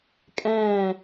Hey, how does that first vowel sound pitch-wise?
falling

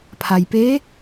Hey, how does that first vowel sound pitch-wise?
low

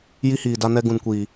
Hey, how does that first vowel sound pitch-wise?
high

